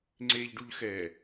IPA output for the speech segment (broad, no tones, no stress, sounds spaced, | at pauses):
ŋ͡ǀ e ʎ ɖ u ʎ x ɛ